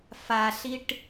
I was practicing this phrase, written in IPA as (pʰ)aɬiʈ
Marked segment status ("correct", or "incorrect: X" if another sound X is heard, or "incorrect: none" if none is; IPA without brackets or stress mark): incorrect: f